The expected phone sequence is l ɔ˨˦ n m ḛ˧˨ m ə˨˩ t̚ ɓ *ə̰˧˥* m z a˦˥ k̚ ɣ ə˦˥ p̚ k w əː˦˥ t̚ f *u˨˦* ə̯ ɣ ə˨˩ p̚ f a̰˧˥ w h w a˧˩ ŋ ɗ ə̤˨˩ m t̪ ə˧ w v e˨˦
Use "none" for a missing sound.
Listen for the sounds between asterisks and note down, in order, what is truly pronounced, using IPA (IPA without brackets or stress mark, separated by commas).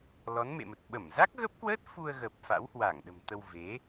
ə˧˩, u˧